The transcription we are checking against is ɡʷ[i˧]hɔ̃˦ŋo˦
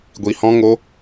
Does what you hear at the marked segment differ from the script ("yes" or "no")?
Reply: no